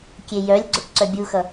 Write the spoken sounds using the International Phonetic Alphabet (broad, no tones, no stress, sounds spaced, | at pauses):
kʲ e j œ lʲ ɡ͡ǀ o ʈ ǀ œ bʲ u x ʌ